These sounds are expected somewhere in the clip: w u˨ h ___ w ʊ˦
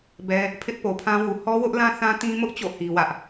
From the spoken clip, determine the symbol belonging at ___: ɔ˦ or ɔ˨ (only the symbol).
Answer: ɔ˦